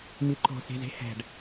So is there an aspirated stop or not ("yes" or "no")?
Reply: no